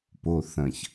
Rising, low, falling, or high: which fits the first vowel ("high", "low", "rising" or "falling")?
low